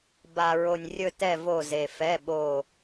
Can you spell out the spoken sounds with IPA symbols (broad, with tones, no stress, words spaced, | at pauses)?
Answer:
ba˨ɹo˨nʲ rʲɵ˦˨tɛ˦˨ vo˦˨ze˨fɛ˧˥˧ɓo˦˨